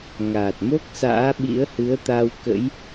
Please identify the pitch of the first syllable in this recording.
low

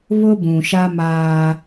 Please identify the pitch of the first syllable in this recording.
high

